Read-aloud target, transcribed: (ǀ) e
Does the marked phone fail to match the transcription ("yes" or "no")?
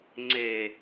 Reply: yes